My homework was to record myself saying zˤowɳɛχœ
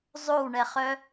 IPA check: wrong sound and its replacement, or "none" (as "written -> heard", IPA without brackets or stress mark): none